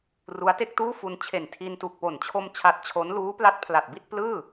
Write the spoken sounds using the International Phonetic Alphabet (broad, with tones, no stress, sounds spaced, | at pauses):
r u˦˥ a̯ t e˥˩ k̚ t uː˥˩ f u˧ n t͡ɕʰ e˨˩ n tʰ i˧ n t u˨˩ k̚ p o˨˩ n t͡ɕʰ o˧ m t͡ɕʰ a˦˥ t̚ t͡ɕʰ o˦˥ n l uː˦˥ p l a˦˥ t̚ pʰ l a˨˩ t̚ b i˥˩ t̚ p l ɯː˥˩